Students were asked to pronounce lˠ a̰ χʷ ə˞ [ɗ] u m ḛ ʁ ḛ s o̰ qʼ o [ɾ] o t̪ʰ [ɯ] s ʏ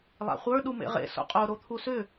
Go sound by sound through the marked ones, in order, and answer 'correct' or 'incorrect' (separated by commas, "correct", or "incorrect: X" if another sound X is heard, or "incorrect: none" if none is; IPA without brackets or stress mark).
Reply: correct, correct, incorrect: u